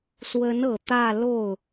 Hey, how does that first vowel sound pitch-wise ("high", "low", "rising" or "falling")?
rising